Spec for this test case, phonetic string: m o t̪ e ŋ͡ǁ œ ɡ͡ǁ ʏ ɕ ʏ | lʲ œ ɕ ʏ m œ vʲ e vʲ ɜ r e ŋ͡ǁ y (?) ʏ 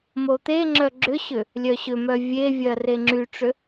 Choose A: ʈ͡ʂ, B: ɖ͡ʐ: A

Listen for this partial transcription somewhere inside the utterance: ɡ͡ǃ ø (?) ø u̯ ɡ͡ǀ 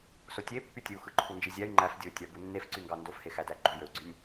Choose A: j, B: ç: A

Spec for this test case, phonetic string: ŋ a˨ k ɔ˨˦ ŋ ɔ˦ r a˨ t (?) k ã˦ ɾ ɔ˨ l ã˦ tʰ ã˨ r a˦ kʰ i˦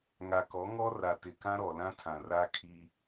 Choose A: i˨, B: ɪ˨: B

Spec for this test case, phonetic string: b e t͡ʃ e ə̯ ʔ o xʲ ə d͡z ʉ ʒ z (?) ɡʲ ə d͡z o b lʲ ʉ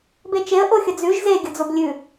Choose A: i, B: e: B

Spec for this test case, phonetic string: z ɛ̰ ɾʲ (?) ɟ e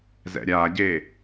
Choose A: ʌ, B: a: B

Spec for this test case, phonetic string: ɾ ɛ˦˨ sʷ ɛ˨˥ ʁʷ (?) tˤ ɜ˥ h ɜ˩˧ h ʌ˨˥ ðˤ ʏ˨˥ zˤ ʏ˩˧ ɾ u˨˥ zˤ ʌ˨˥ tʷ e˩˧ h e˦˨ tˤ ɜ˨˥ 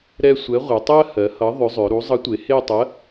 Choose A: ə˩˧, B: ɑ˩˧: A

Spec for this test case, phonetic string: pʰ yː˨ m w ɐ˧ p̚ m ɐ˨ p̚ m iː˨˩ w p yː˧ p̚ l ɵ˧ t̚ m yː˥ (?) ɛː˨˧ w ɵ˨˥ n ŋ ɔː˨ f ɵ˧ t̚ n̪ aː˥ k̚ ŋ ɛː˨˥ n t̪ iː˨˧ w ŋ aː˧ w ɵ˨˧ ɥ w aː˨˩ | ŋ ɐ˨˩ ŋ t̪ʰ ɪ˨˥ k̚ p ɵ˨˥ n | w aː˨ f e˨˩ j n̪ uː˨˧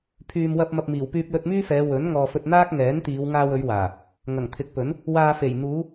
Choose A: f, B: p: A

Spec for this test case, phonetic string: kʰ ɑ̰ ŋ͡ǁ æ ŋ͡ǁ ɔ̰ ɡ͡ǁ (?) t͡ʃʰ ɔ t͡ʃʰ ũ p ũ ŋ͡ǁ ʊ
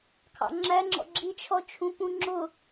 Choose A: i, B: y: A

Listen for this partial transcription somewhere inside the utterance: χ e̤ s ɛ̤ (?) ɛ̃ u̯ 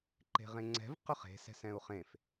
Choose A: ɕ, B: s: B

